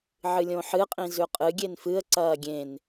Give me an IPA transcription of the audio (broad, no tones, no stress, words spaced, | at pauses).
ʕɨlʲõħɨqʼĩ zʉqʼɨɡʲen fɨə̯ ǀɐːɡʲẽn